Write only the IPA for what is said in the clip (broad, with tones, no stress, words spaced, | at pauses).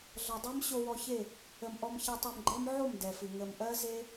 ɮʌ˨dˤe˦m ɕo˧wɔ˧çe˦˨ | ə˨m ʔɔ˧mçɛ˧tˤɛ˧mɡ͡ǃɜ˦m ʕo˦˨m dɛ˨fɨ˨ ŋə˨mʔɜ˦ze˦